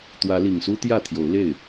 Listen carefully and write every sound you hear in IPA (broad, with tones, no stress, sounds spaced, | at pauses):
t̪ w ä˨˦ l i˨˩ ŋ s u˦ t̪ j ä˥˨ t̪ʰ j o˨˦ ʊ̯ l e˥˨ ɪ̯